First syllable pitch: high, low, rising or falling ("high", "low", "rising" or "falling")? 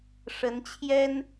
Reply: rising